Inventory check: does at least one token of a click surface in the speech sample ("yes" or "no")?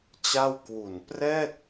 no